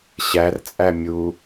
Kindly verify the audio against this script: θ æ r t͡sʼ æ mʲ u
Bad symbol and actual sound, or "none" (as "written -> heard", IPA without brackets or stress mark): θ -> ɕ